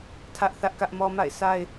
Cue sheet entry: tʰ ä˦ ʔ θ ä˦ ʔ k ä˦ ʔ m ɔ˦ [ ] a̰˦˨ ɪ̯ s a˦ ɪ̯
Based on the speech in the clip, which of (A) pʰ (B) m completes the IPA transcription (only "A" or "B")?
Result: B